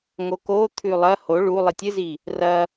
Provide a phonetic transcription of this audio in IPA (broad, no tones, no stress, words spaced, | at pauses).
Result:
ŋokot̪ʰʉ lˠɐ ho ɭu lˠitʲɨzi | rɐ